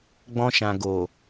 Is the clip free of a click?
yes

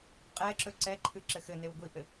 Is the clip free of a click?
no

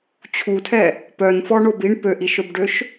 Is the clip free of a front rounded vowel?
no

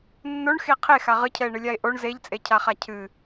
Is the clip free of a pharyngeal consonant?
yes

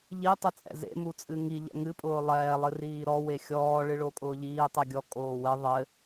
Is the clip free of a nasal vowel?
yes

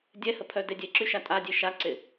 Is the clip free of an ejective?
no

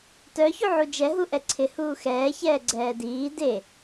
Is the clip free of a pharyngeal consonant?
no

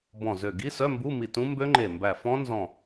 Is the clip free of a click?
no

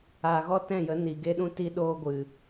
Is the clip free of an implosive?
no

